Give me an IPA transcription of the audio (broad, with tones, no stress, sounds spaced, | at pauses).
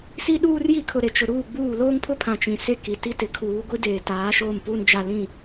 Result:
s i˦ ɗ uː˦ r j i˦˨ kʰ ʊ˨ ɾ e˨ t͡ʃ ʊ˨ ɾ uː˦˨ ɡ͡b uː˦˨ l oː˦ ŋ pʰ ʊ˦ pʰ ã˨ t͡ʃ ĩ˨ s e˦ k i˨ t i˦ t ɪ˨ kʰ uː˨˦ ɡʷ i˦ d eː˨ t aː˨˦ ʃ oː˦˨ m p uː˦ n d͡ʒ a˦ l ĩ˦˨